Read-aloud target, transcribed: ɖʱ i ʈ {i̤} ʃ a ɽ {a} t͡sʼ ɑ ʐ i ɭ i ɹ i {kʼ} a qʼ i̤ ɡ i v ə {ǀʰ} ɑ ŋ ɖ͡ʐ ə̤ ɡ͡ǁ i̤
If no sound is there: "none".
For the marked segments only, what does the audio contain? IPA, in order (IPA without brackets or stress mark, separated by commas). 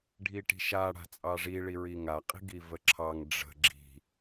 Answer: i̤, a̤, ŋ, ǁʰ